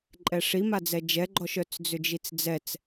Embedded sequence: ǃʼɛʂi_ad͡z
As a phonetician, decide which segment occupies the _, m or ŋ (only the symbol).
m